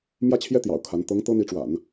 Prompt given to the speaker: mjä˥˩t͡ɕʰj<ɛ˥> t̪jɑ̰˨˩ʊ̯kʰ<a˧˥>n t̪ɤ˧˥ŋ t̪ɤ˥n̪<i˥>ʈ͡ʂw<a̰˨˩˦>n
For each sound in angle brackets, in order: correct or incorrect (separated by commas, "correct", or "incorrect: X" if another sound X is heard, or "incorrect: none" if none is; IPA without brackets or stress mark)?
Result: correct, correct, incorrect: i˧˥, correct